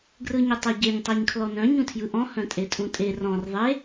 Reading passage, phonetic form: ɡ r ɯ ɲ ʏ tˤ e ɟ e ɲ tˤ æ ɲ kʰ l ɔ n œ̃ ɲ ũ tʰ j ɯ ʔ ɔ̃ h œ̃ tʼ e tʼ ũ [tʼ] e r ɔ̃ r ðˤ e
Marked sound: correct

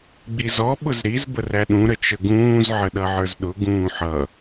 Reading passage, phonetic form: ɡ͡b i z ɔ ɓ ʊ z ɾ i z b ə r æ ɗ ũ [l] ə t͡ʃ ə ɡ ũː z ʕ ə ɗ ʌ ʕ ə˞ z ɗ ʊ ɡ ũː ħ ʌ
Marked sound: incorrect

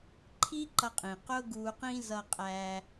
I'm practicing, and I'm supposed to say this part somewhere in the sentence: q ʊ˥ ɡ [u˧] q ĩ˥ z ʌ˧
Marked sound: correct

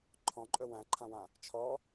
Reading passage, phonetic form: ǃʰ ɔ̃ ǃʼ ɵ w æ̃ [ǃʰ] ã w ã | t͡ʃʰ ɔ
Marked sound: correct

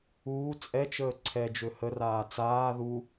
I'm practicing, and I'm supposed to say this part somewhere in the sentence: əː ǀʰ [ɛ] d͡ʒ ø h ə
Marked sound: correct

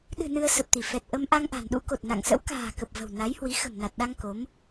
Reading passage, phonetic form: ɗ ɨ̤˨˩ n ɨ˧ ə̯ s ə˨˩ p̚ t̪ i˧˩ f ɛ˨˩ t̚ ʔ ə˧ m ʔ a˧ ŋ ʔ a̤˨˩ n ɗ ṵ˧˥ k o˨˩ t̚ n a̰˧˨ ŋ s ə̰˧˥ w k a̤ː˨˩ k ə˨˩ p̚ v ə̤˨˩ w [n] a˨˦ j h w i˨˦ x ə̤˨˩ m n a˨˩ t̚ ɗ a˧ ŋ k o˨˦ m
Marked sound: correct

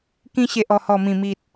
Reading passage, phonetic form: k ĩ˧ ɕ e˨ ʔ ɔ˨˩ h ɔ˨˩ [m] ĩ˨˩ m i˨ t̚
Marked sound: correct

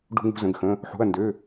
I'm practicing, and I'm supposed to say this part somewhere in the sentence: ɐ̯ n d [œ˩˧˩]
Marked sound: incorrect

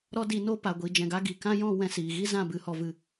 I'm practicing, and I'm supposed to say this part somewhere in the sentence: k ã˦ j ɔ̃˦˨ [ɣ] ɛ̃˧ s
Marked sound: incorrect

